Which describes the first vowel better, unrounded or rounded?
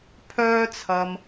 rounded